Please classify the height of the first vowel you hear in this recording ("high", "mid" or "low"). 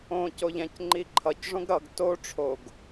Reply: mid